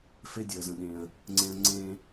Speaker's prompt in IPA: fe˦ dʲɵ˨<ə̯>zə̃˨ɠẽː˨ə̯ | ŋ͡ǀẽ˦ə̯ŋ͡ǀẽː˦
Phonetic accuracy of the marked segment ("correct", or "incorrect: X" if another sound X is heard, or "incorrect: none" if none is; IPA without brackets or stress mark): correct